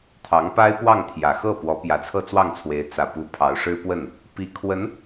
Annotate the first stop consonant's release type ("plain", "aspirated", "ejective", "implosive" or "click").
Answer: aspirated